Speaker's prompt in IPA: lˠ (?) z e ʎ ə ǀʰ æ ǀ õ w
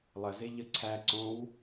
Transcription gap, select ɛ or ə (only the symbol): ə